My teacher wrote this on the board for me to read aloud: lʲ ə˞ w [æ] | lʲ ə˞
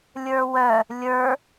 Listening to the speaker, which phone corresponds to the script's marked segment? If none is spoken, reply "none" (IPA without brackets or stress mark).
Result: œ